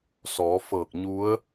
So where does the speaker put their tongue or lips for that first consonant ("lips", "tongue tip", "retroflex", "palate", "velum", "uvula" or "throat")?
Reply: tongue tip